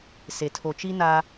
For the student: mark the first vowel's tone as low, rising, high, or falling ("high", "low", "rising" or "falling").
low